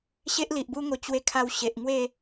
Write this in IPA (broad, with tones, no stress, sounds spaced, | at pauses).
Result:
ɕ e˦ ʔ l i˨ ʔ b u˦ ŋ o˧ t͡ɕ w e˧ kʰ a˧ w ɕ e˨ ʔ ŋ w e˥˧